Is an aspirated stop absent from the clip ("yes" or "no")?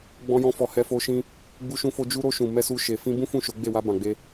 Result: yes